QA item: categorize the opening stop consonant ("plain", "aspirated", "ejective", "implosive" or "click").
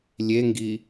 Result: plain